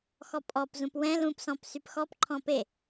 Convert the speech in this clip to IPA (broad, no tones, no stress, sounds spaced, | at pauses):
x ɔ pʼ ɔ p z ũ p w ɛ̃ l ũ p s ɔ̃ p s y p x ɔ p ǃʰ ɔ̃ p e